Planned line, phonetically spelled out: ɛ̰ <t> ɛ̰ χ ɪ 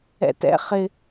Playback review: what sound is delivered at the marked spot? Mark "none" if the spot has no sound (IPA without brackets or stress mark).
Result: t